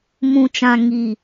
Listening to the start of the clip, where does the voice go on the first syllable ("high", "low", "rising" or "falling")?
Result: low